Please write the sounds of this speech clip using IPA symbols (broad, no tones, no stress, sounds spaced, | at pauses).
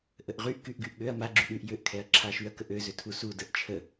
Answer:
ʔ ə ʔ ʁ y ʔ k y ʔ ɡ y ʔ ɠ ø ɐ̯ m a ɡ͡ǁ y ɗ y ʔ j ø ʔ kʰ ɛ ɐ̯ ǁʰ a ʃ y ɐ̯ k ə ʔ ø z ø tʰ u s u d ə ʔ t͡ʃʰ ə